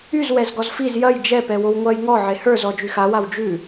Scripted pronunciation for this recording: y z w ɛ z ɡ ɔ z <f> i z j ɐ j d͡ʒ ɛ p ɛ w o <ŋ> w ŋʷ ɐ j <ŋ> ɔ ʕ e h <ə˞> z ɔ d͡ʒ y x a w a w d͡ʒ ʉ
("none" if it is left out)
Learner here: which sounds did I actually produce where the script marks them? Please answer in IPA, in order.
f, none, ŋ, ə˞

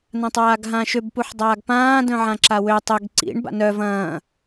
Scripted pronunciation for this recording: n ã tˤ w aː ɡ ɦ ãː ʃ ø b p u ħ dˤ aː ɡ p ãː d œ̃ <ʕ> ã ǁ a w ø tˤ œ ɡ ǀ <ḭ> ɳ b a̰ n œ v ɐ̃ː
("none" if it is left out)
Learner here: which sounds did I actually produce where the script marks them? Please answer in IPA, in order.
ʕ, ḭ

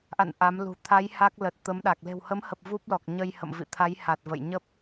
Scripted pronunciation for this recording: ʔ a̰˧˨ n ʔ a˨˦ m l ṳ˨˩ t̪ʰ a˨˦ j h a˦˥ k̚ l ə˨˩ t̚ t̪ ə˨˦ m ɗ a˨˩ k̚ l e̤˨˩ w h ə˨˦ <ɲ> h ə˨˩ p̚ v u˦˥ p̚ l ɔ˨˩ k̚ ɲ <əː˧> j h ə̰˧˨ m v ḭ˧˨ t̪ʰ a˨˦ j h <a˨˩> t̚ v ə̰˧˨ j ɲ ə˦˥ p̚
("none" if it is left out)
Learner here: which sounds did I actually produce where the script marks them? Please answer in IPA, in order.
m, əː˧, a˨˩

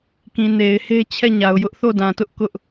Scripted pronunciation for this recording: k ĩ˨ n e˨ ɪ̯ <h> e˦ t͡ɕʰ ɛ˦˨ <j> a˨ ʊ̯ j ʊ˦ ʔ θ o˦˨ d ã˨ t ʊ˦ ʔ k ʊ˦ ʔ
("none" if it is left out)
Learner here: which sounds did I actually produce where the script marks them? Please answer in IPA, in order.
h, ɲ

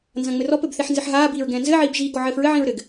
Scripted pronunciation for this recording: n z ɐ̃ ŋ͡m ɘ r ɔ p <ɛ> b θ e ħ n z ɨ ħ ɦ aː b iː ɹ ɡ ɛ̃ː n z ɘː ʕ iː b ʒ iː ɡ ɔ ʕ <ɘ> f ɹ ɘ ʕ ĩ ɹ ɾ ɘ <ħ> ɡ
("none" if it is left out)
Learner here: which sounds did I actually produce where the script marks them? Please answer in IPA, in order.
ɘ, ɘː, none

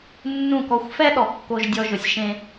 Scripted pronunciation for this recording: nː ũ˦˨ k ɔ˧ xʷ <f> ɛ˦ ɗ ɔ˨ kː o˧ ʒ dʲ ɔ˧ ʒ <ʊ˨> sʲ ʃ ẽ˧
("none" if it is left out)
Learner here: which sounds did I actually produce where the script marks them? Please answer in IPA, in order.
f, ʊ˨

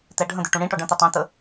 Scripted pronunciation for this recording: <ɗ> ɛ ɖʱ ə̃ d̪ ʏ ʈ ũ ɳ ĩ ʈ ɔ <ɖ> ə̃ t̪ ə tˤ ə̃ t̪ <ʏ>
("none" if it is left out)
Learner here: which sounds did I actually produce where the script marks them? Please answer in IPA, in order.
t̪, ɖ, ə

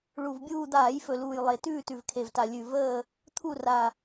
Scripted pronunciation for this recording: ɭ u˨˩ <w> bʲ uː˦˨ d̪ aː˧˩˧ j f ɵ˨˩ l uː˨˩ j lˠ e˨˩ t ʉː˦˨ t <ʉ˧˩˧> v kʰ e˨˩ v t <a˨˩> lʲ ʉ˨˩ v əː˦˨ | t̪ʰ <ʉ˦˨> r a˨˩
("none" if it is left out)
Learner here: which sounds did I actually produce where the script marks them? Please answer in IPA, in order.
v, ʉ˨˩, a˨˩, u˦˨

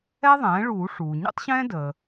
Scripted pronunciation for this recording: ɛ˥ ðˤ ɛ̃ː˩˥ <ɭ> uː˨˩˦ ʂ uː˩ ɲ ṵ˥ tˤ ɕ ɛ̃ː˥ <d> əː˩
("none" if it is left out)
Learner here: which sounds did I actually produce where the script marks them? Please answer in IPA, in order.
ɭ, d

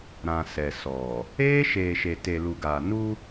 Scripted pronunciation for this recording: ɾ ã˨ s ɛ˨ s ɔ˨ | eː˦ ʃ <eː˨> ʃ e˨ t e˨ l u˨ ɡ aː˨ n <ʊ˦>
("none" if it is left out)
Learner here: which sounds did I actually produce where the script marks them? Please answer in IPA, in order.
eː˨, u˦

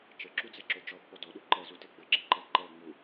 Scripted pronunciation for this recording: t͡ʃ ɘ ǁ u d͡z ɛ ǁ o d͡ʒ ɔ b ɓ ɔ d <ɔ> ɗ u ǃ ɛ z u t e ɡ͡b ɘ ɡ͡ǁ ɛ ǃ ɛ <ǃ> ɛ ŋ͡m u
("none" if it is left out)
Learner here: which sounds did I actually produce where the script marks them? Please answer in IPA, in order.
ɔ, ǃ

